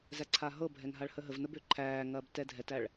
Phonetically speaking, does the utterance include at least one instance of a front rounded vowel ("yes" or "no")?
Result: yes